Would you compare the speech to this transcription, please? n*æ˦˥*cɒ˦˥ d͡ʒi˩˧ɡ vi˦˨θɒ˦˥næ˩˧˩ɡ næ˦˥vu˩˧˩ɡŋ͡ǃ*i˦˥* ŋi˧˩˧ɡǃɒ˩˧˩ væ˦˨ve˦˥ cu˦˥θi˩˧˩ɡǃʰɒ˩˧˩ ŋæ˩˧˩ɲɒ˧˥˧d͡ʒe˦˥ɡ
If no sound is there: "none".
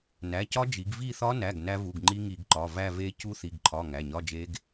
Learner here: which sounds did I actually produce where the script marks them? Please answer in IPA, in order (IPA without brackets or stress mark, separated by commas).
æ˩˧˩, i˦˥